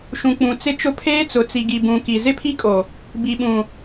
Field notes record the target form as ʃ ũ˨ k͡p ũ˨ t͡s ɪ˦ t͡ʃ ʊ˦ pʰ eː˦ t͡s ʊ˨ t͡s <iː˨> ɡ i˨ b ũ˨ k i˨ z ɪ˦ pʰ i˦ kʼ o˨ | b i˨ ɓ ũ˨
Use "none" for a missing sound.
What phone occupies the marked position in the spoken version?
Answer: i˨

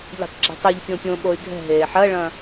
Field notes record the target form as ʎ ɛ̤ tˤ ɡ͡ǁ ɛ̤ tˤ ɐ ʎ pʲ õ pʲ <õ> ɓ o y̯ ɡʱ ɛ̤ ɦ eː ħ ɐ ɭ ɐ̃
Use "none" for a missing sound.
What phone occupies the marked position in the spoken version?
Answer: õ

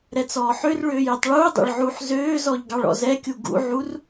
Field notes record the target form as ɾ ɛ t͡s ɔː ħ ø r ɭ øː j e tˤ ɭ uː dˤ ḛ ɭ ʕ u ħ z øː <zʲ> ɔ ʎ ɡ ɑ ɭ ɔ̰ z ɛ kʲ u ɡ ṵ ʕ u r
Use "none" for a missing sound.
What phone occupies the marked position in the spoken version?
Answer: z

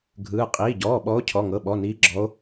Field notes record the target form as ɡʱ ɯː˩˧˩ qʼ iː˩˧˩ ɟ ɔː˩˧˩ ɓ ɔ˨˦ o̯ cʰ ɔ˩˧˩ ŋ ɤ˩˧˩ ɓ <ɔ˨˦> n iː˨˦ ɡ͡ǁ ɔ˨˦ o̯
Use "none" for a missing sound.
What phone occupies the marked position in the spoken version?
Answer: ɔ˩˧˩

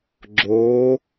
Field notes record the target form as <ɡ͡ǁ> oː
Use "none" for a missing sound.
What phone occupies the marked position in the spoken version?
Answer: ɡ͡ǁ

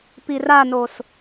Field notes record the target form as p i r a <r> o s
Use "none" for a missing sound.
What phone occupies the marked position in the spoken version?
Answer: n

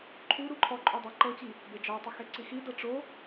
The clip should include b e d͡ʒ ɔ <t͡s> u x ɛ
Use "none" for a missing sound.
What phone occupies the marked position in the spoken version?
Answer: tˤ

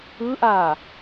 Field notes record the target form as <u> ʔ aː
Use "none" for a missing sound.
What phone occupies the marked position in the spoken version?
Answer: ɯ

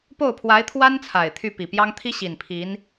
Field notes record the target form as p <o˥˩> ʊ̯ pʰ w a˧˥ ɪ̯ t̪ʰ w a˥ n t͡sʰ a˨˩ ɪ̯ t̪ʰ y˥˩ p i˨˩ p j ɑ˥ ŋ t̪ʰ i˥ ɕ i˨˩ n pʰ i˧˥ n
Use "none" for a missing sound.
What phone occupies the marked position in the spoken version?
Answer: o˥˩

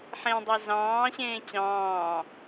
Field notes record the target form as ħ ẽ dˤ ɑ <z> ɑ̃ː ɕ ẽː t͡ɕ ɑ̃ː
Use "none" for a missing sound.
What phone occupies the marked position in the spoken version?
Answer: z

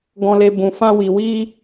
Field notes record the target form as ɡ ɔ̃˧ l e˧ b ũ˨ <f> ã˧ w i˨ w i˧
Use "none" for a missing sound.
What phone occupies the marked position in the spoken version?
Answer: f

